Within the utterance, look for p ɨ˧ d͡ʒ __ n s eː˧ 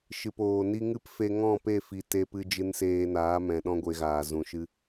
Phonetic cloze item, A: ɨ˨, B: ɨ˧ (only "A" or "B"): B